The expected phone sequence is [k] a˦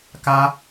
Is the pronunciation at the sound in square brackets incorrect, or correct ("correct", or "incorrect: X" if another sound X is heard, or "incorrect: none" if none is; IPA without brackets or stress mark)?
correct